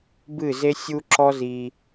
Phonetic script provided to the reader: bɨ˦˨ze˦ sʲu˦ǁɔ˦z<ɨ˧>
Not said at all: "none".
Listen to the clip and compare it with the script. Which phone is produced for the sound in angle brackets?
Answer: i˧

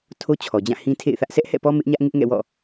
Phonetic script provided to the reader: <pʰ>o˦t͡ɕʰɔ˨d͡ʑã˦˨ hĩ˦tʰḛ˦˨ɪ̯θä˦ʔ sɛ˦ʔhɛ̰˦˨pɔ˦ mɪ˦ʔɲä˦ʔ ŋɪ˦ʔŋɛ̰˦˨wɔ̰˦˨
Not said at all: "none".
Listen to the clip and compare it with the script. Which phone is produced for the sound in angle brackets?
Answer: tʰ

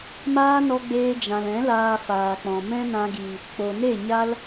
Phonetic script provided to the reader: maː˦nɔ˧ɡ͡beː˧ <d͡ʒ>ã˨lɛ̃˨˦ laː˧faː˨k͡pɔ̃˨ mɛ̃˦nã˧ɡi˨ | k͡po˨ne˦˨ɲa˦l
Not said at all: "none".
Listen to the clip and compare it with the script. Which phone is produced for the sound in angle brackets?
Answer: d͡ʒ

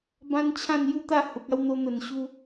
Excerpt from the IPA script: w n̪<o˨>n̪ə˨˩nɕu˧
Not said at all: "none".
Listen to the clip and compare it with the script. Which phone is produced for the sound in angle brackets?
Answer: o˧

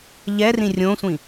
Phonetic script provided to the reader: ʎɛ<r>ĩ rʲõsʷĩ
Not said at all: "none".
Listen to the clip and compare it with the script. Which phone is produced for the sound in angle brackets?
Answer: r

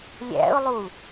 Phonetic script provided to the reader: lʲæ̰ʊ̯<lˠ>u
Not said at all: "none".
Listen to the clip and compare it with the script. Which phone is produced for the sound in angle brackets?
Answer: lˠ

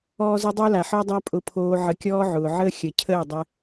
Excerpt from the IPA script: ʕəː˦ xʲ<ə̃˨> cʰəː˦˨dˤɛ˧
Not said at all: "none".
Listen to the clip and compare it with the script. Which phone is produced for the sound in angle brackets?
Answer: ə˨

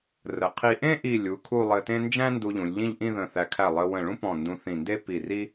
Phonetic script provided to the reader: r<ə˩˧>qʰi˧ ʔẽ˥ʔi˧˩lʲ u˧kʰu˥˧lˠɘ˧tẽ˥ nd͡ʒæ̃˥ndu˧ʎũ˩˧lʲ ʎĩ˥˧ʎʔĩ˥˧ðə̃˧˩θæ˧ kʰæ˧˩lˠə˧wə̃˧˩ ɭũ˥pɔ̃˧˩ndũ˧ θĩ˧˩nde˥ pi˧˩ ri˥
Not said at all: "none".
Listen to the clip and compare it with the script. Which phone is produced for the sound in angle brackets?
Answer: ə˩˧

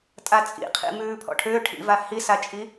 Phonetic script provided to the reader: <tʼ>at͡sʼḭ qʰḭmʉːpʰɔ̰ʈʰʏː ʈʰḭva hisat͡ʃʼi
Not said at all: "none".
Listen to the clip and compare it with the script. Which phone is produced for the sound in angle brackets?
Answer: tʼ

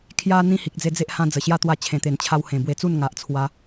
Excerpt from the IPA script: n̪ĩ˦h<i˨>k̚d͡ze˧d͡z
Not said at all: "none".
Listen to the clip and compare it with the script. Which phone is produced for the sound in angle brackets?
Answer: i˨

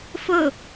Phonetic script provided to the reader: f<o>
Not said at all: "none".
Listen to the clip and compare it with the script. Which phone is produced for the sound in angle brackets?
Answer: ɵ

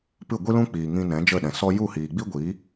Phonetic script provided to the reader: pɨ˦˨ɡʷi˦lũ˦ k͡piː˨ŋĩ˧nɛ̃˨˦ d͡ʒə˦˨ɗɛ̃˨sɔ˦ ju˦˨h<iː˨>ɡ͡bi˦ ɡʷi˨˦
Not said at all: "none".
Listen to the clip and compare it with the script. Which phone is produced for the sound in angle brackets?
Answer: iː˨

